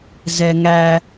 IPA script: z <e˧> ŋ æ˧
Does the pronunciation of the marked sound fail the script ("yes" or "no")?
yes